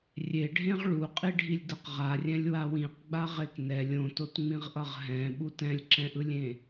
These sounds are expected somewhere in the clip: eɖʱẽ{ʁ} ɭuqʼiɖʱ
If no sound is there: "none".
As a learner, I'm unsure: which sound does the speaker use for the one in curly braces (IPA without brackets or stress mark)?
ʁ